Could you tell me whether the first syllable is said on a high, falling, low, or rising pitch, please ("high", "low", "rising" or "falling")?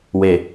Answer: low